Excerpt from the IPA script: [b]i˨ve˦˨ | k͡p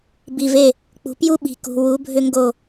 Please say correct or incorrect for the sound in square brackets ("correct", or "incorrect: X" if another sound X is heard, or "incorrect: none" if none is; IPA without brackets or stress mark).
correct